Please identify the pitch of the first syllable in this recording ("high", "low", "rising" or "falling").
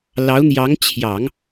rising